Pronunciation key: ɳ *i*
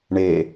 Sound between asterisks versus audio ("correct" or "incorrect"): incorrect